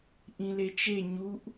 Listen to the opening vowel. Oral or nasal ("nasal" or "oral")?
nasal